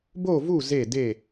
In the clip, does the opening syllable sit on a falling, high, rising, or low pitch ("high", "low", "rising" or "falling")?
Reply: falling